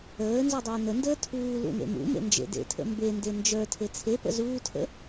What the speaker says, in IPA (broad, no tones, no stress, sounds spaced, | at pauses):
əː n z u dˤ əː n ə n d əː tʰ uː l ṵ n ḛ m ṵ m ḛ n d͡ʒ ḛ d ḛ tʰ ə̰ m b e n d e n d͡ʒ ə˞ tʰ e t͡sʰ e p ə̰ z uː tʰ ə̰